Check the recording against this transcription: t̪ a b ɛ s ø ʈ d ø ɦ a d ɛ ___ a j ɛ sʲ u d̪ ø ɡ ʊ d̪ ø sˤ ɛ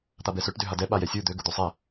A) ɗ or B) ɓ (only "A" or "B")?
B